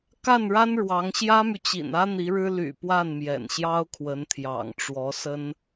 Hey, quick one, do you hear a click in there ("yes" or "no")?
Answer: no